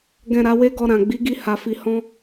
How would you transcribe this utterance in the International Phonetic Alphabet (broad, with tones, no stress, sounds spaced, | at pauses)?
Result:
ɡ ɛ̃˨ ɾ a˨˦ w e˦ ɡ ɔ˧ ɾ ã˨ ɡ͡b i˨˦ ɡ i˧ h a˨ f i˨ h ɔ̃˧